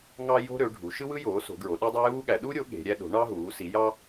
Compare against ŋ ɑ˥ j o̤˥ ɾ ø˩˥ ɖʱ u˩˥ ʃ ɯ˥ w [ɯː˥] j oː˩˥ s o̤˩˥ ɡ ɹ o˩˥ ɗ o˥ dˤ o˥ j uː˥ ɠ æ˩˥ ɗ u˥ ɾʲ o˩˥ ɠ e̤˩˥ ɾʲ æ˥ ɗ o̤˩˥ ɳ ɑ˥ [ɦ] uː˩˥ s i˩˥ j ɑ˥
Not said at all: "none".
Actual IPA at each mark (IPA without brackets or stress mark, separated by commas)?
ɯ˥, ɦ